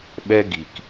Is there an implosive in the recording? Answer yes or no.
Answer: yes